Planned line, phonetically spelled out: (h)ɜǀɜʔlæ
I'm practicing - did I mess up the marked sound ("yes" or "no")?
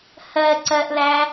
no